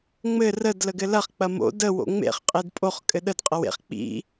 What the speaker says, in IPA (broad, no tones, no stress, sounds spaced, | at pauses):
ŋ͡m ɘ r ə d l ə ɡ ɘ l ɐ χ k͡p ɐ m o̰ d ə w o̰ ŋ͡m ḛ χ qʼ e d pʼ o χ kʼ ɘ ɗ ə d qʼ ɐ w ḛ χ k͡p ḭ